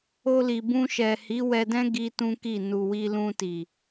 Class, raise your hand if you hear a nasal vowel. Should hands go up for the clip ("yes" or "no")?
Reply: yes